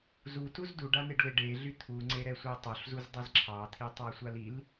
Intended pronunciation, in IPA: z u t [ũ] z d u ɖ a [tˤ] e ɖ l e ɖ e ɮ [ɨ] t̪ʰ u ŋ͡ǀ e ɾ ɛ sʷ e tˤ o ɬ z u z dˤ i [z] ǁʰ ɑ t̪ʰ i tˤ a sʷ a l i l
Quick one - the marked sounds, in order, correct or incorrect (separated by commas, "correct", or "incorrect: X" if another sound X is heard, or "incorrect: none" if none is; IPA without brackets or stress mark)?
incorrect: u, incorrect: n̪, incorrect: y, correct